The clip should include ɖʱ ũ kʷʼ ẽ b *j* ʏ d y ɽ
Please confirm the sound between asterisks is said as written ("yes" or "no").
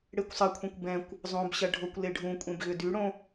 no